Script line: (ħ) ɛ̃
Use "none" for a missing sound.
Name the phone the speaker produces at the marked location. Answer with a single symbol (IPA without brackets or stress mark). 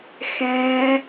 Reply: x